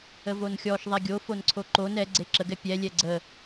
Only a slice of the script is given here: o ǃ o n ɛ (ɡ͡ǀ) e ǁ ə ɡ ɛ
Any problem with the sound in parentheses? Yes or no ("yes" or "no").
no